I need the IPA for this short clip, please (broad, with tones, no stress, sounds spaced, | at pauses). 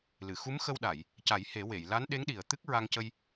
l ɨ˨˩˨ x u˧˥ m x ə˧ w ɗ a˨˩˨ j | c a˨˩˦ j h e˨˩˦ w e˨˩˨ j l a˧˥ n ɗ e˧˥ ŋ ɗ i˨˩ ə̯ t̪ ɨ˦˥ k̚ ɹ a˧ ŋ c ə˧ j